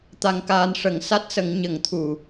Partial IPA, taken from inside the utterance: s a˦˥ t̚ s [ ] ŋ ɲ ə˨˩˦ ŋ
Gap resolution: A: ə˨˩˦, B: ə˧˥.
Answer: A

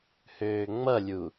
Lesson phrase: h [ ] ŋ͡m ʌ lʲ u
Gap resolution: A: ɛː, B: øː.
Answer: B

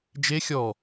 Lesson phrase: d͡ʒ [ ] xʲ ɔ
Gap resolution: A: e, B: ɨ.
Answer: A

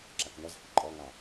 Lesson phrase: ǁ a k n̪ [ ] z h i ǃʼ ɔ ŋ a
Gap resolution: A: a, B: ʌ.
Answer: B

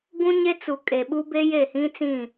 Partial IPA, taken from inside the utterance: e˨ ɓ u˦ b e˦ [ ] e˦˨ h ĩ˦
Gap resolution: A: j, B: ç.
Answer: A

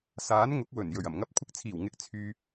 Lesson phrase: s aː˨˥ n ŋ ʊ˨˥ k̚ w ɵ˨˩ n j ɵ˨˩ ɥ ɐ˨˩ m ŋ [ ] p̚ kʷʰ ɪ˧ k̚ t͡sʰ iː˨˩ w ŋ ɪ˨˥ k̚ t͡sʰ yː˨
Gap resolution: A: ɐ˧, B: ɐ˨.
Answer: A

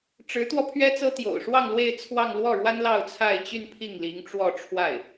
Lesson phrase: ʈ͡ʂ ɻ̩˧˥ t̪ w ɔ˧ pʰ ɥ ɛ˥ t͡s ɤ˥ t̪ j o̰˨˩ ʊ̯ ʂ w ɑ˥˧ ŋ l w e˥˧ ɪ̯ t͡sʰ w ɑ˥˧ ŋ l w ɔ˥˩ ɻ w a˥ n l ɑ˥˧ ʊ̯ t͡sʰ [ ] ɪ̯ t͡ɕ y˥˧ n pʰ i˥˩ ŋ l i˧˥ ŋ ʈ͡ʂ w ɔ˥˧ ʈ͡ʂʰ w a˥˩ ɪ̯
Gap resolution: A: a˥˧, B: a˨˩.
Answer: A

